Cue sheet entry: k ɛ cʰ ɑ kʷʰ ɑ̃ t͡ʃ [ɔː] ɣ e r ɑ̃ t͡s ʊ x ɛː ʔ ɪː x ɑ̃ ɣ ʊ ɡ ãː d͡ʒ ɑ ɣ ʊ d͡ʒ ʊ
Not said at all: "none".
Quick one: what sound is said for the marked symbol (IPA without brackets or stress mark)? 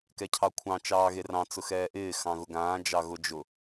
ɑː